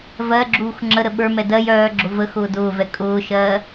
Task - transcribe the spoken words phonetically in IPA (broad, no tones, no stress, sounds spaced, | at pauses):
v ɜ ɡ͡ǁ uː x ŋ͡ǁ ə ɾ ə ɓ ə˞ m ɛ d ɜ j œː ɡ͡ǁ ʊ v ə x ʊː d ʊː v ɛ kʼ ʊː ʃ ɜ